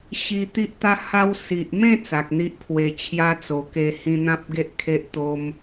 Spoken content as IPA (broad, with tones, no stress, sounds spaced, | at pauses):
ɕ i˧ t̪ i˦ ʔ t̪ a˦ h a˧ w s i˨ ʔ m ẽ˥˧ t͡s a˨ k̚ n̪ i˦ ʔ pʰ w e˧ t͡ɕʰ j a˦ t͡s o˧ k e˧ h ĩ˧ n̪ ã˦ p̚ ɡ e˦ ʔ kʰ e˦ ʔ t̪ o˦ m